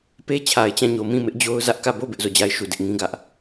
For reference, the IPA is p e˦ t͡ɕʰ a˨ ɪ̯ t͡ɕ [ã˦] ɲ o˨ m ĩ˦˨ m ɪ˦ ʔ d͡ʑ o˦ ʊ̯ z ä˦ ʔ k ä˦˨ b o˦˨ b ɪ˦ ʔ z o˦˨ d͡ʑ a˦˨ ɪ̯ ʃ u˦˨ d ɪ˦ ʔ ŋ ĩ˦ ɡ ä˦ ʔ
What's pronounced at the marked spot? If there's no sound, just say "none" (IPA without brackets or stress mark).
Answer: ã˦˨